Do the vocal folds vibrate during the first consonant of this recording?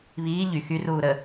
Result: yes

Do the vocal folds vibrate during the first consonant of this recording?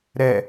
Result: yes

